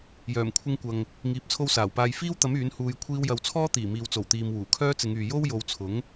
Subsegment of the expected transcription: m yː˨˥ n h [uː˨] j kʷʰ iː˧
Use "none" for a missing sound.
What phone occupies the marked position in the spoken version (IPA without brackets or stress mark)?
uː˧